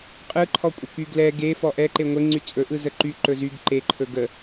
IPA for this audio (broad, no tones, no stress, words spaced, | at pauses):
qʼɯǃʰɔkʷʼə kyɡlɛ ɡe fɔʔɛǃe ŋʷeŋ͡ǀy t͡sʼɵ ʔɯzəǃy ǃɵzyɡ ǃeǃʰɵ ɡə